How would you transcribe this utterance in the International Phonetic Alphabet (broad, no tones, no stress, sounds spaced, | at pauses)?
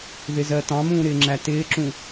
ð ɪ z ɜ t ɑ̃ m ũː ɾ ɪː ŋ͡ǁ æ t ɪː ǁ ũ